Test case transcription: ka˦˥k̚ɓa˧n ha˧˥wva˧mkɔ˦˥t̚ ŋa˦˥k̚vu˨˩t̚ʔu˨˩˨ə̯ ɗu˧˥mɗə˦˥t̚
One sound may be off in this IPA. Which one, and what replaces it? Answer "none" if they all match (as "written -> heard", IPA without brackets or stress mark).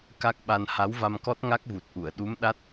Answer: ə˦˥ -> a˦˥